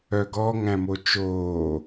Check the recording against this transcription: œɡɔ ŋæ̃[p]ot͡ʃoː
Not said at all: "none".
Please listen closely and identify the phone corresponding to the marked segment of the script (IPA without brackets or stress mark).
m